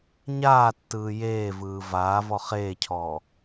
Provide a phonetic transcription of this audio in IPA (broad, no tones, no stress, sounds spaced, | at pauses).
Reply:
ɲ aː tː ɯː j eː v ɯː v aː v ɔ χ eː cʰ ɔː